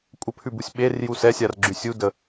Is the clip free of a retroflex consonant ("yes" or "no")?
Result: yes